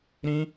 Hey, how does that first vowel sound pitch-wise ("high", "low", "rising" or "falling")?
high